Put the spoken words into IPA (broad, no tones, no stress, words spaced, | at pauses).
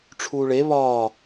ʈ͡ʂʰuːɭe βɒː